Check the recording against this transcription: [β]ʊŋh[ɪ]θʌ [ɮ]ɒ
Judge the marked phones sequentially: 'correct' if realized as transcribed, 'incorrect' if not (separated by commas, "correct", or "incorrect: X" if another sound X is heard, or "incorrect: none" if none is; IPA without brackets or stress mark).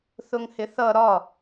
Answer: incorrect: θ, correct, incorrect: ɾ